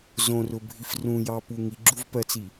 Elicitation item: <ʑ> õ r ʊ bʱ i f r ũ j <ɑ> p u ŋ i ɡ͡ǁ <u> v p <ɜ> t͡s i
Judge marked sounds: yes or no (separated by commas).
no, yes, yes, yes